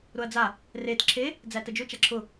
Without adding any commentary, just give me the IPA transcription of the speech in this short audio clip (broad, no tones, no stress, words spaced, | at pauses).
ɾʊɐ̯d͡za | ret ǁʰe | d͡zætəd͡ʒʊ t͡ʃaǁʰʊ